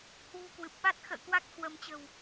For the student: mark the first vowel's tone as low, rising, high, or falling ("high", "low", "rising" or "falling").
low